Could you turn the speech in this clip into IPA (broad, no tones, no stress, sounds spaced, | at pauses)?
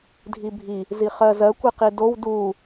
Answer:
dʱ i bʱ i | z i χ ɜ z ɜ kʷ i q i d o w d u